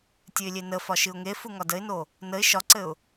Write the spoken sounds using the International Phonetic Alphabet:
tʲ ɨ ɪ̯ lʲ e n ə f ɒ ʃ ɨ ʊ̯ ŋ e f u ŋ ɒ d ə ɪ̯ n o | n ə ɪ̯ ʃ ɒ ǀ ɘ ʊ̯

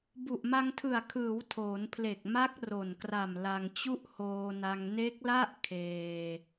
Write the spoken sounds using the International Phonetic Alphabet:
b u˨˩ ʔ m a˧ ŋ tʰ ɯ˨˩ a̯ kʰ ɯː˩˦ w tʰ oː˩˦ n pʰ l e˨˩ k̚ m a˦˥ k̚ r o˨˩ n k r a˨˩ m l a˧ ŋ t͡ɕ u˥˩ ʔ h oː˧ n a˧ ŋ n e˦˥ k̚ l a˥˩ ʔ kʰ eː˧

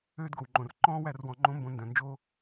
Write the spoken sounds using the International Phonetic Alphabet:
øː˦ d ɡ o˨ w ŋ͡ǃ õ˨ r ǃ ɔ̃ː˦ w æ˧ r w ɔ̃˨ ŋ͡ǃ õ˦ m b õ˧ n d œ̃˨ n d͡ʒ o˦

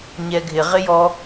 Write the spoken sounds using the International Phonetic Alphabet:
ɲ ɛ ɡʱ ɪ ʁ ɪ j ɔ

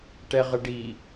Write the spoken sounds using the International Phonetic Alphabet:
ʈ ɛ ʁ ə ɖ i

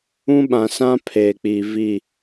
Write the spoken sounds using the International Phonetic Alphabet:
ũ˦ ɓ ã˨ s ã˦ pʰ eː˨ k͡p iː˨ v i˦˨

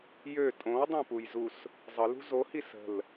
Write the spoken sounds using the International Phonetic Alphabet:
j ø tʼ õ w dˤ ɛ̃ p u j z u s | zˤ ə l ṳ z o h i s ə̤ l

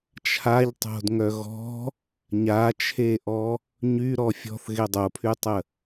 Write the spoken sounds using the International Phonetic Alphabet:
t͡ʃʰ a ʎ tˤ o̤ d ŋ œ ɣ ɔ̤ | ɲ a t͡ʃʰ e ʔ ɔ | ɲ y ɾ ɔ fʲ ɔ̤ θ ɣ e dˤ o pʰ y tˤ ə

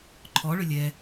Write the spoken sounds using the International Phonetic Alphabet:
ǃʰ ɔ ɭ ʏ lʲ ɛ

